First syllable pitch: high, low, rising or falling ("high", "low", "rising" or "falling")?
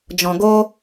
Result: low